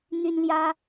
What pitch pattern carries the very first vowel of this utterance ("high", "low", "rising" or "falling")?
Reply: high